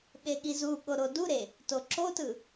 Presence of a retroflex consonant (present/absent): absent